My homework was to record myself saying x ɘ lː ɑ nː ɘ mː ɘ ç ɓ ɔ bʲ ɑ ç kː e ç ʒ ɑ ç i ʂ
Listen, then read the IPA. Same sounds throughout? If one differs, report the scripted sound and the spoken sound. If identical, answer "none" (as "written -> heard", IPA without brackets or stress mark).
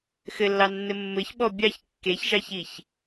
ʂ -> ç